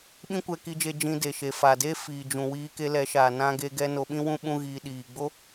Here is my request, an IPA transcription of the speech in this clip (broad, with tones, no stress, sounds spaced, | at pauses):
ɓ ĩ˦ kʷ ɛ˧ k i˧ d͡ʒ e˧ d͡ʒ ĩ˧ d e˨ ʃ e˨ f a˨ d e˦ f iː˨ d͡ʒ ũ˨ w iː˧ k e˧ l ɛ˨˦ ʃ aː˨ n ã˦ ɡ e˦ ɡ ɛ˦ n o˧ ɓ ĩ˦ w ũ˦ ɓ ũ˦ ɣ iː˧ ɗ iː˨ ɡ͡b o˦